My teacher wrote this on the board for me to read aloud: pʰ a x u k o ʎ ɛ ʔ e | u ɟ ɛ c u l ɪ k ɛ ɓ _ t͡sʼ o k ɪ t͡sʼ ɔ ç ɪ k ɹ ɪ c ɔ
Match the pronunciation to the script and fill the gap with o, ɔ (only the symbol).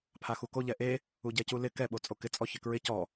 o